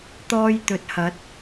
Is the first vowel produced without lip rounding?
no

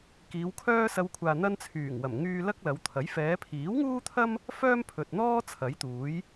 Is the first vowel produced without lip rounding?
yes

